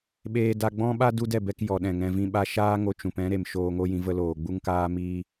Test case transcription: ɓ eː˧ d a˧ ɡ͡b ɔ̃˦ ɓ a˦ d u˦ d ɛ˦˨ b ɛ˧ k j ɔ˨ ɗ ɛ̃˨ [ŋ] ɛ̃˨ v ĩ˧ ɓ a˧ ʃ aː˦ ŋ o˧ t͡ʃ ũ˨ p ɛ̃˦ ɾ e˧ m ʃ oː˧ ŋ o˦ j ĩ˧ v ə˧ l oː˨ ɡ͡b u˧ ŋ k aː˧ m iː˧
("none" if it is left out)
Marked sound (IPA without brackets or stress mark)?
ŋ